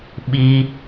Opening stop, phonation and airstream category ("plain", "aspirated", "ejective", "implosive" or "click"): implosive